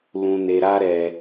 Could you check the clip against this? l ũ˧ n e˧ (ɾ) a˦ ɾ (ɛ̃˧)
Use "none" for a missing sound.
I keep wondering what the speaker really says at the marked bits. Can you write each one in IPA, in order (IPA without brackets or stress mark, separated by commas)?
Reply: ɾ, ɛ˧